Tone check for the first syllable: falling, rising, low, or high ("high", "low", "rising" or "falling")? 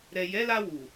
low